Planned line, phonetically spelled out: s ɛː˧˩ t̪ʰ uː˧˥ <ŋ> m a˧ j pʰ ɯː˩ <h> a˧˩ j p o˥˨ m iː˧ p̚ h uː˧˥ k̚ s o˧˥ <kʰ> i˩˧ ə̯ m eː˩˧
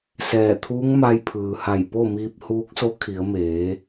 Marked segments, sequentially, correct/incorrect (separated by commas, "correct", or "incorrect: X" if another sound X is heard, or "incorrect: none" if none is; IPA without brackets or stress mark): correct, correct, correct